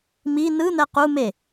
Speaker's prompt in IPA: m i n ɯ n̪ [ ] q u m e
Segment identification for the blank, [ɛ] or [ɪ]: ɛ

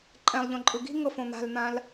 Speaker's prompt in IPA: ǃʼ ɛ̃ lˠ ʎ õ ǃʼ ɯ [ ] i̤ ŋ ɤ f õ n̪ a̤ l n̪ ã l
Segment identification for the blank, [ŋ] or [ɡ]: ɡ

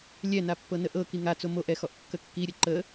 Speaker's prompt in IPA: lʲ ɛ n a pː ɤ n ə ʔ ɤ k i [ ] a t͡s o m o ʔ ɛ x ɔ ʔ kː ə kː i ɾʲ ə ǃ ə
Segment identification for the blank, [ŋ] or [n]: ŋ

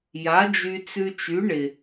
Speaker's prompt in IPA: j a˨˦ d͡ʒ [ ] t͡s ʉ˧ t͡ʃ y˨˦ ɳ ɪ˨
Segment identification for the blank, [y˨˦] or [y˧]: y˧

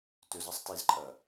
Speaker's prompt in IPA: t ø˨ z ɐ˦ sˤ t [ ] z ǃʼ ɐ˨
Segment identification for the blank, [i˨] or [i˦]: i˨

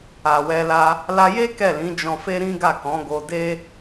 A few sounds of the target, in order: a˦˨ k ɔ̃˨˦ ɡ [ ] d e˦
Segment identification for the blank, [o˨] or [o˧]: o˧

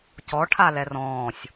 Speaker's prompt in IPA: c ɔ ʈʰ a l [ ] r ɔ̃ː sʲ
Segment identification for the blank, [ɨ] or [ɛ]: ɛ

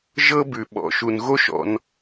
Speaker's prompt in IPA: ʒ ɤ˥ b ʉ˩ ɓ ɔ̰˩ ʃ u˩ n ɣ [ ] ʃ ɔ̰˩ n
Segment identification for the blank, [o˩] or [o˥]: o˥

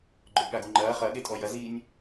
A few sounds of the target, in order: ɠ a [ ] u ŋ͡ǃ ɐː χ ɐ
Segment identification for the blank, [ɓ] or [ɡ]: ɡ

